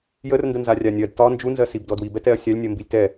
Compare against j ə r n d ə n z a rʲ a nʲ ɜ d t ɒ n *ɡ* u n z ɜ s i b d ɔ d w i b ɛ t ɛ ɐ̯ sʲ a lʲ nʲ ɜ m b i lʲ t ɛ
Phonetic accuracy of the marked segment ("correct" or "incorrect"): incorrect